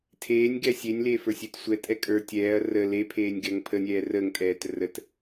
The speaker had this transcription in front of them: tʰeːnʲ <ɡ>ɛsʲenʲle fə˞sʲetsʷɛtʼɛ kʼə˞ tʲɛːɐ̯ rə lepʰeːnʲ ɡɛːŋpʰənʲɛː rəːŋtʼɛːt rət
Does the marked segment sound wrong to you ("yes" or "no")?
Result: no